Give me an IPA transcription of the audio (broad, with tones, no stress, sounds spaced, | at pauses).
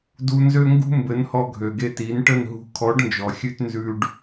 d u˧ n z ø˦ ŋ ɡ ṳ˦ m b ɘ˨˦ n h ɔ˧ ɡʱ ø˨ ɡ e˧ t i˨˦ n ʈ ə˦˨ n ɦ ṳ˧ kʰ ɔ˨˦ ɖ n d͡ʒ ɔ˨ xʲ ʉ˧ t n z ʉ˧ ɖ